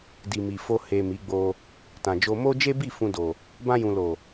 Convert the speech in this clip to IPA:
d i˨ m i˨ f o˧ h e˨ m i˨˦ ɡ͡b o˧ | t ã˨ d͡ʒ o˧ m o˦ d͡ʒ e˦ b i˦˨ f ũ˧ d o˨ | b ã˧ j ũ˨ l o˨

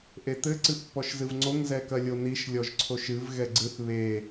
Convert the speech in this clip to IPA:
ʔ e t̪ ɘ ǀ ɨ pː ɔ ʃ z ɨ v ŋ͡ǀ o ŋ z ɛ k ɐ lʲ o n i ʃ lʲ ɔ ʒ ǀʰ o ʃ ɨ v ɣ ɛ ɡ͡ǀ ɨ θ β e

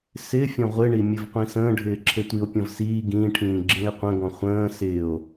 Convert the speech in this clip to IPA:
s ɪː fʲ ɔ̃ ʁʷ ɪ ɳ i mʲ ɘ v qʷ ĩ s ə̃ː ɖʱ ɪː ǁʰ e tʷ i o̯ pʲ ɔ̃ v s iː ɡ ĩː ʈʰ ĩː ɡ͡ǁ ĩ e̯ qʷ ə̃ ɡ ɔ̃ χʷ ə̃ː s ɪː o̯

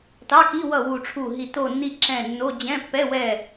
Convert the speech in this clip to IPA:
t ɑ˧˥˧ k i˧˥˧ w ʌ˦˨ w u˦˨ ʈ͡ʂʰ u˦˨ ɦ i˦˨ t o˦˨ nː i˦˨ ǁ ɛ̃˦˨ nː o˧˥˧ d͡ʑ ɛ̃˧˥˧ pː ɛ˧˥˧ w ɛ˦˨

